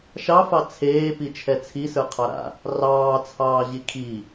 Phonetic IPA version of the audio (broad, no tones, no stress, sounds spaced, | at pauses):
ʃ ɑ f ɑ t͡sʰ eː p i t͡ʃʰ ɛ t͡sʰ i s ə˞ qʰ ɑ ɾ a̰ | r ɑː t͡sʰ ɑː ʑ i kʰ i